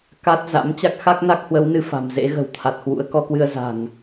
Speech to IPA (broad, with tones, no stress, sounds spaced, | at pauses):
k a˦˥ t̚ z a̰˧˥ m t͡ɕ a˦˥ k̚ x a˦˥ k̚ n a˦˥ k̚ h w ə˨˦ w n ɨ˧ f a̤˨˩ m z ḛ˧˥ ɣ ə̤˨˩ w t̪ʰ a˨˩ t̚ h w ṵ˧˥ ə̯ k ɔ˧ k w ɨ˧ ə̯ z a̤˨˩ ŋ